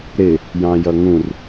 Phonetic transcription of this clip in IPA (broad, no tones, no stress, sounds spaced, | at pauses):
ɾ ɪ | j ɑ̃ j ʌ ŋ ũ r